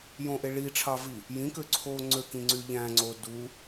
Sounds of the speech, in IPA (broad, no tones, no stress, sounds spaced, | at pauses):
j õ ʔ e ɭ i ʈ͡ʂʰ ɑ v i | j ĩ k ø ǀʰ oː ŋ͡ǀ ø k ĩ ŋ͡ǀ y ʎ æ̃ ŋ͡ǀ o d u